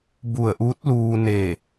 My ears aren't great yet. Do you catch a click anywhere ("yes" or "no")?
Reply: no